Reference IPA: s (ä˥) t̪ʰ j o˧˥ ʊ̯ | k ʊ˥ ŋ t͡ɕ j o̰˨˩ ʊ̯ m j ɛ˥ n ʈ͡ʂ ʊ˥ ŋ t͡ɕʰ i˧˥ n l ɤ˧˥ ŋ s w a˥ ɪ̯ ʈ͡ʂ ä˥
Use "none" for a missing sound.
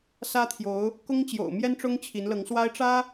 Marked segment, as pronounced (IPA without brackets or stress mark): ä˥